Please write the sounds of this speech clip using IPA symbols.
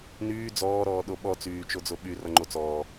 n yː d͡z ɔː ɾ ɔː ɗ o ɓ ɔ t͡s yː t͡ʃ o d͡z o ɓ y r ʌ ŋ͡ǃ o t͡s ɔː

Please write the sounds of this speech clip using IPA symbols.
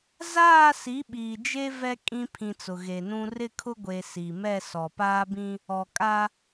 z aː˦˨ s i˨˦ ɓ iː˨ d͡ʒ e˦ v ɛ˦ kʼ ĩ˦ pʰ ĩ˨ t͡s ʊ˨ ɣ e˨ n ũ˦ r ɪ˦˨ kʰ ʊ˦ ɡʷ e˨ s i˨ m ɛ˦˨ s ɔ˨ p aː˦ b ĩ˦ | ɔ˨ kʼ a˦

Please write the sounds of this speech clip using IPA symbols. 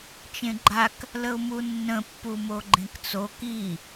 t͡ʃ ẽ ɡ͡ǃ a k | l ə ʊ̯ m u nː ə̃ pː u m o ɡ͡ǃ ẽ k t͡s o k i

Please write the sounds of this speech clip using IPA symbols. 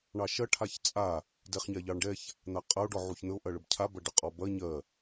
ɳ ɑ ʃ ɐ ʈʰ a ç t͡sʼ a | d ɛ χ ɲ a ʎ ɑ ɳ ɖ ɛ ç | n̪ a qʼ ɐ o̯ ɖ ɔ ʕ u ç n̪ ə o̯ ʔ ɐ ɭ ə b cʰ a b ɐ ɖ ə qʼ ɔ b ɐ ɲ ɜ

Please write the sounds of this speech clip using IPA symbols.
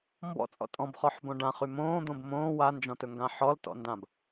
m b ɔ̰ t͡sʼ ɔ̰ tʼ ɔ̃ b χ ɔ ħ b õ ɖ ã χ y m õː d̪ õ b m õː w a n d͡ʒ ɔ̃ t ɵ ŋ ɡ ã ħ ɔ l t ɔ̰ n d ã b

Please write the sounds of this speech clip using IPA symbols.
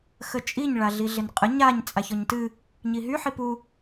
x ə t͡ʃʼ i ɲ ɭ a ɮ i ɮ ɪ n qʼ ə ɲ a ɲ t͡sʼ a ç ɔ ɲ t ɨ | ɲ i ɦ y ħ i p u

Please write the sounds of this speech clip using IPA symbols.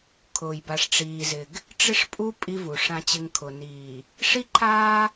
kʰ ʊː˨ j b a˨ ʂ ʈ͡ʂ iː˨ z ɪ˨ ɡ | ʈ͡ʂ ɪ˦ ʂ pʼ u˦ pʼ i˦ v u˨ ʂ ã˨ t͡ɕ ɪ˨ ŋ kʰ ʊ˨ n iː˨ | ʂ i˦ ǃʰ aː˦

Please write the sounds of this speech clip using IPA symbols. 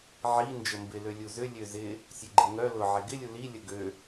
ʕ i n d͡ʒ ə m b ɪ l ø lʲ u z ʏ lʲ ø z ɪ | sʲ ø ɡ͡ǃ ɪ ŋ œ l ʊ ʕ e ɡ ɪ lʲ u l i lʲ ə ɡ ø

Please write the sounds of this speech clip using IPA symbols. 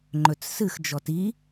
ŋ͡ǃ ɵ t͡s s ɨ x d͡ʒ ɔ t i

